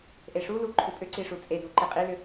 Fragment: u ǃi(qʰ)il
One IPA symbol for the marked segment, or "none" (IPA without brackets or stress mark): qʼ